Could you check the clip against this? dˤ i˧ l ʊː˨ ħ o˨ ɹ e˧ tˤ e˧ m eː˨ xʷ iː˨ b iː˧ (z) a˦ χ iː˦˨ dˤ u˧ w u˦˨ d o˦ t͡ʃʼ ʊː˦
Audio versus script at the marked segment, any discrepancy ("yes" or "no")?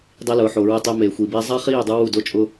yes